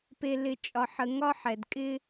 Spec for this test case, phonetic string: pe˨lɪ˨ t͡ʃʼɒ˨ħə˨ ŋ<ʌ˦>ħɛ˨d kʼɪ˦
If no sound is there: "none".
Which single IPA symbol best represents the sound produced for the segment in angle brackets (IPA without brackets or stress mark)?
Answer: ɒ˦